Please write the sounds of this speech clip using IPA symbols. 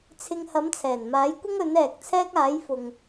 t͡sʰ ɪ˧ ŋ h ɐ˨˥ m t͡sʰ ɛː˨˩ n m aː˨˥ j kʷ ɪ˥ ŋ ɵ˨˥ n ɛː˨ k̚ t͡sʰ ɛː˥ k̚ aː˨˥ j f ʊ˨ ŋ

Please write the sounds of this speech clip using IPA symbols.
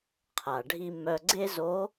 qʰ a˩ ɖʱ i˧ m œ˧ ɡ͡ǀ e˥ z o˧˥

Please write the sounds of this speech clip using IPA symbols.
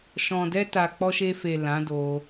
ʃ ɔ̃˨ d ɛ˧ t a˨ k͡p ɔ˧ ʃ e˧ f e˨ l ã˨˦ d o˧

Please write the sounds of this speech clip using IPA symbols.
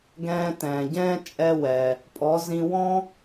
ɡ ɛ̃ː˧ t ɛ̃ː˩ ɟ ɛ̃ː˥ t͡ʃʼ ɛ˧ w ɛ˩ | pʼ ɔ˩˧ z ĩ˧ w ɔ̃˥

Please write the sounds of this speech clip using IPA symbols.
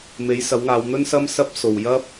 m e˨˥ j s ɐ˨˥ w ŋ aː˨˧ w n̪ ɵ˥ n s ɐ˥ m s ɐ˥ p̚ s o˨ w j ɐ˥ p̚

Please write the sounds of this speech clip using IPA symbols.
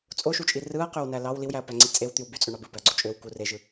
t͡sʼ o ʃ u t͡ʃʼ i r ɯ ɐ̯ q ø w n æ l ɑ w l i w j æ ɐ̯ p æ ŋ͡ǀ i t͡sʼ e w t̪ y w b y t͡sʼ ø ɳ ɑ b ɯ b æ ɐ̯ ɡ͡ǀ o t͡ʃʼ ø w k u r e ʒ ɯ

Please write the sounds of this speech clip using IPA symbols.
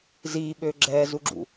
z iː ɓ øː ɡ͡ǁ ɛː z u ɡ͡ǁ ṵ

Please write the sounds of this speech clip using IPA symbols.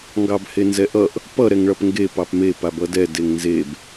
ŋ ɡ ɑ b h e n z ɛ ʔ ʌ ʔ | p ʌ ɾ ɛ ŋ ɭ ʌ p ŋ ɡ e p ɑ p m e p a b ʌ d ɛ d e ŋ n z e b

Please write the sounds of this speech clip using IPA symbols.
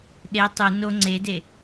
ɗ e tˤ u n o ŋ͡ǀ e d e

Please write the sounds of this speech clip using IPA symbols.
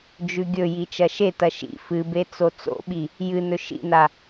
d͡ʒ ʉ ɡʲ ɵ j i t͡ʃ ɐ ʃ e t ɐ ʃ ḭ f ɨ b e t͡s o t͡s o̰ ɓ i | j ɨ n ɵ ʃ ḭ n a

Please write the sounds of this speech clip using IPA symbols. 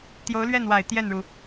t̪ j o˧˥ ʊ̯ l ɥ ɛ˥˩ n w a˨˩ ɪ̯ t̪ j ɛ˥˩ n ɻ u˩

